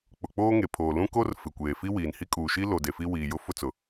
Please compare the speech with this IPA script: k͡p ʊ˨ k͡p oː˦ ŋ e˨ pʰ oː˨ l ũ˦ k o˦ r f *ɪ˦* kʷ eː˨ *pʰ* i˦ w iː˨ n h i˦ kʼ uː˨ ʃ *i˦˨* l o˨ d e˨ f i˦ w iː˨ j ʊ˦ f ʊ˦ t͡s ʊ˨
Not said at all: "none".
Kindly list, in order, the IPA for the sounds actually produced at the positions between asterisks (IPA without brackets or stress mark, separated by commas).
ɪ˨, f, i˦